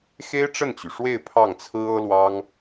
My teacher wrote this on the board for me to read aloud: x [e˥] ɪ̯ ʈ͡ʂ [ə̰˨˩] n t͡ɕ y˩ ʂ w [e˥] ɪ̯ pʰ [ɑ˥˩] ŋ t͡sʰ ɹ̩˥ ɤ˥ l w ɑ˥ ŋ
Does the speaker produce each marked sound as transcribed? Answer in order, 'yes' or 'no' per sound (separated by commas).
yes, no, no, yes